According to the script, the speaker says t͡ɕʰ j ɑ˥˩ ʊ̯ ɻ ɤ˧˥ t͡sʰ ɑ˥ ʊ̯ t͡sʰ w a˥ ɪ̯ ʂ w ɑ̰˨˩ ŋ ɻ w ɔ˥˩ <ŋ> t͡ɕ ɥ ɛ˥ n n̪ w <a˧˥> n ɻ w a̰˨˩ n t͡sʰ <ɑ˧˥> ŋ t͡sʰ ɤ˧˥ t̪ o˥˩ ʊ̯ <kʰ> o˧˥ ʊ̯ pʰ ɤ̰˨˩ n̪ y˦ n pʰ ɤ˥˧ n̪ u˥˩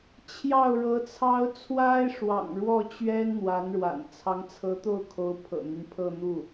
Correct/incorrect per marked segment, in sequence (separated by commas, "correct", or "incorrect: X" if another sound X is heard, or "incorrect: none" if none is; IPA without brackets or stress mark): incorrect: none, correct, correct, correct